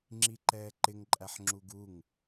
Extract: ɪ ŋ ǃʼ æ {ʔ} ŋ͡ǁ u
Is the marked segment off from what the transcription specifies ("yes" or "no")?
yes